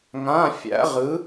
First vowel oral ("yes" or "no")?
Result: no